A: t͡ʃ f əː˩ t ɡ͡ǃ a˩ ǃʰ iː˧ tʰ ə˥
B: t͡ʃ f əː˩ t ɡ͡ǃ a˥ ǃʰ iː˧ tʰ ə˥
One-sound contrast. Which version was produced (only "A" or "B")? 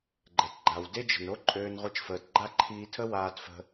B